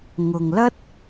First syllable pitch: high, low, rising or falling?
low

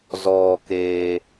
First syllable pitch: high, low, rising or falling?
low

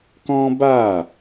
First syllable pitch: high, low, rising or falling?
high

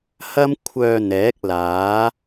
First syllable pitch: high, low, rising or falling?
high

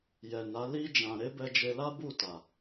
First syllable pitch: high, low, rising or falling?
low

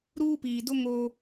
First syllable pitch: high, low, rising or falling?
high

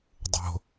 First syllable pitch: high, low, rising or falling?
low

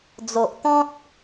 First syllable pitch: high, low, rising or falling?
low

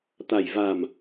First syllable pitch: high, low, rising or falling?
low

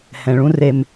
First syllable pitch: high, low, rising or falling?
low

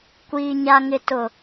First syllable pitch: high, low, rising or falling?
low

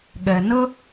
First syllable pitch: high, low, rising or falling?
low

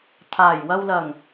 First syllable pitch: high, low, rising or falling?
low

